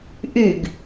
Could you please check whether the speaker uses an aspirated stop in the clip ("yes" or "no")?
no